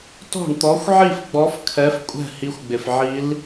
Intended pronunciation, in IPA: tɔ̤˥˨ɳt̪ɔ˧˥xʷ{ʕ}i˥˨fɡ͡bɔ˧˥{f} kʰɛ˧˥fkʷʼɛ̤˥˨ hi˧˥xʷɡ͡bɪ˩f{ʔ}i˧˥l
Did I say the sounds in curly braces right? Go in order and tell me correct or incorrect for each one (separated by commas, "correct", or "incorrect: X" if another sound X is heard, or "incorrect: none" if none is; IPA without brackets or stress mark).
correct, correct, incorrect: ʕ